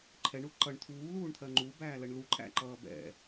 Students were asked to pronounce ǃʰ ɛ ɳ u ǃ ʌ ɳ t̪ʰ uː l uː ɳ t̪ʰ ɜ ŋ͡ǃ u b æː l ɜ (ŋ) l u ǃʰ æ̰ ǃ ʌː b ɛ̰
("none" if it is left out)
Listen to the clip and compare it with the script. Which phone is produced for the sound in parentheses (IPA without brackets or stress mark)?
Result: ɳ